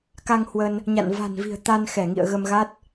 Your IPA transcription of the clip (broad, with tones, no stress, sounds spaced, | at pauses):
k a˧ ŋ h w ə˧ n | ɲ a̰˧˨ n v a̤˨˩ n v i̤˨˩ ə̯ t̪ a˧ n x ɛ˧˩ ŋ ḭ˧˨ ə̯ ɣ ə˧ m ɣ a˦˥ t̚